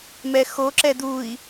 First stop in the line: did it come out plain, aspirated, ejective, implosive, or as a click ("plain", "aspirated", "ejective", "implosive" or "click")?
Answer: click